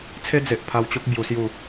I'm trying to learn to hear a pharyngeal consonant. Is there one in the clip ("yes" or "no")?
no